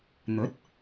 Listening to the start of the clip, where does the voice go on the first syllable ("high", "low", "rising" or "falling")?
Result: rising